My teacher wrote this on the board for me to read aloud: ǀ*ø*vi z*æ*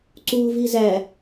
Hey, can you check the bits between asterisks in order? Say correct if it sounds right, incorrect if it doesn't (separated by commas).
incorrect, correct